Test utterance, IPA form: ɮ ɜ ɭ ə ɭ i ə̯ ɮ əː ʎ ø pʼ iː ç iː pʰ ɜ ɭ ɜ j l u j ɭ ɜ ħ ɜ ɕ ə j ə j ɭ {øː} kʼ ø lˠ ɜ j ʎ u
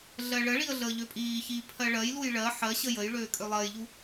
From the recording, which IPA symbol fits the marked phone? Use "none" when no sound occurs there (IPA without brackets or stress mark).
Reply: øː